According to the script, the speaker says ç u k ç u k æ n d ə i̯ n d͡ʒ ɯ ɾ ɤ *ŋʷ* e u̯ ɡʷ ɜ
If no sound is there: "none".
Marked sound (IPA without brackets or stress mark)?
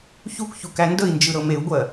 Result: m